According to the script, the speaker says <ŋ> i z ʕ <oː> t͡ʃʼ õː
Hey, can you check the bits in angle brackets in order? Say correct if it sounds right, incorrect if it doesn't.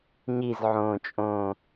incorrect: ɲ, incorrect: õː

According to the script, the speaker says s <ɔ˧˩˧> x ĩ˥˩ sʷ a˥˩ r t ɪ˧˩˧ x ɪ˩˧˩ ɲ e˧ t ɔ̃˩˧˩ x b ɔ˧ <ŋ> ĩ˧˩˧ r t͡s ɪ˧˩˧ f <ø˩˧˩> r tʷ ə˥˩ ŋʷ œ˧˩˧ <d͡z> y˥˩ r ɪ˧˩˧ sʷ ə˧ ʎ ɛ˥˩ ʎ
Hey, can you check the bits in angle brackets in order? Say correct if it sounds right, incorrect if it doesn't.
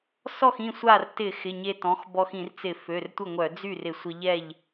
incorrect: ɔ˥˩, incorrect: x, correct, correct

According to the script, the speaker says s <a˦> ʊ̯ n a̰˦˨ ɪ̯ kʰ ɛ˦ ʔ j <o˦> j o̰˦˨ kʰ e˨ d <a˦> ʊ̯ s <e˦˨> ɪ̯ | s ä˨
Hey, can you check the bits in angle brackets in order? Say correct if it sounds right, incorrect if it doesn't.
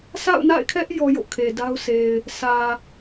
incorrect: a̰˦˨, incorrect: ɔ˦, correct, incorrect: e˨

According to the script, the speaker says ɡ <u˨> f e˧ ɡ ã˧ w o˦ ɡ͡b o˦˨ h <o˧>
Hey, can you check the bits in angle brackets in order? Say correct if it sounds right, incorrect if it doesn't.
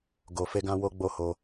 incorrect: o˨, correct

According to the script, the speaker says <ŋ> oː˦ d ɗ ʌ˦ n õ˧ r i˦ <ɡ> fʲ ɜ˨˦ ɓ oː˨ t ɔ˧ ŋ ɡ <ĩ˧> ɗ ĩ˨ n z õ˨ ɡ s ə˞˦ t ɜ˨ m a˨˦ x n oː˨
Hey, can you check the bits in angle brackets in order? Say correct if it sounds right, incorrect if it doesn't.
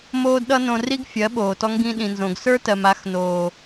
incorrect: m, correct, correct

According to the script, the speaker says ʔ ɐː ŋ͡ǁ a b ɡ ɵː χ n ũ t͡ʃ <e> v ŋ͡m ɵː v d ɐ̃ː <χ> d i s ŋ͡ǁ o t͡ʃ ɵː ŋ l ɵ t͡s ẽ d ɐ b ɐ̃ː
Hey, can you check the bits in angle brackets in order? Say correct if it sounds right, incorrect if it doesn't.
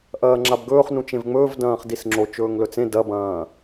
incorrect: ẽ, correct

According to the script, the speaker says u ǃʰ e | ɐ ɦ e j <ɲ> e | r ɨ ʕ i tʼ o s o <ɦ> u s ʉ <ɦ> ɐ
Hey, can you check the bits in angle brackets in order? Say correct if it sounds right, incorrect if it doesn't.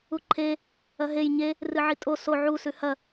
correct, incorrect: ʕ, incorrect: h

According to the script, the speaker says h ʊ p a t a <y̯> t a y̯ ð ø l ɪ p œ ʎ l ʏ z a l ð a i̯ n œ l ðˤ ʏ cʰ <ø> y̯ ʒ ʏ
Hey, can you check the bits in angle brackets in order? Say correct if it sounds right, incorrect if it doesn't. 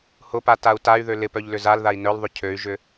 incorrect: u̯, correct

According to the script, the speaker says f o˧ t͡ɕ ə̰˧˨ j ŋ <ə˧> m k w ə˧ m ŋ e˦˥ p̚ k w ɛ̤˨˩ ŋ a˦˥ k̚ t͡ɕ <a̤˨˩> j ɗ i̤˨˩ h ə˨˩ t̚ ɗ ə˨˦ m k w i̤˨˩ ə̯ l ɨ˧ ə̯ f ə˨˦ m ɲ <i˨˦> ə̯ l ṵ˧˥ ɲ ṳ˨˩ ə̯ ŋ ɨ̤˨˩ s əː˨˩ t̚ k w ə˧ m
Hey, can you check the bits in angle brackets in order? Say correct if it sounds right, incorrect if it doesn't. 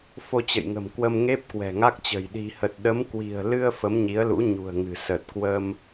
incorrect: ə̤˨˩, incorrect: ə̤˨˩, correct

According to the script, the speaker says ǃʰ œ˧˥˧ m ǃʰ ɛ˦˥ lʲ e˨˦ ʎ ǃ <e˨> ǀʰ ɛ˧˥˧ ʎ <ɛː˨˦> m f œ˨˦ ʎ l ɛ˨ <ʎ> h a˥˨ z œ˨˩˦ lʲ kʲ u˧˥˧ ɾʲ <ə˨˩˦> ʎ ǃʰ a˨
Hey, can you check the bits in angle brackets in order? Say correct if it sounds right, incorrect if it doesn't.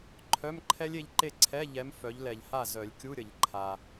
incorrect: e˥˨, incorrect: ɛ˨˦, correct, correct

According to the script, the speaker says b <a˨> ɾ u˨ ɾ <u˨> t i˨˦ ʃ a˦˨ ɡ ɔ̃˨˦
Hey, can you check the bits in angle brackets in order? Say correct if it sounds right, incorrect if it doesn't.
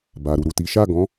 correct, correct

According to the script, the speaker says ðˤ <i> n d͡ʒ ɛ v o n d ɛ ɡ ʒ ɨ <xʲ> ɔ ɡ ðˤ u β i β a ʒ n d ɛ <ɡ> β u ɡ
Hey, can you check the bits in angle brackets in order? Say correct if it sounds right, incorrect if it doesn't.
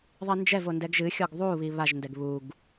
correct, correct, correct

